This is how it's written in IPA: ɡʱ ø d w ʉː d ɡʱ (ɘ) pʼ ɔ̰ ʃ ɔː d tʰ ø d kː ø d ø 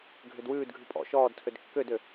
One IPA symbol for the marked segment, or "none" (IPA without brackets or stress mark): ʉ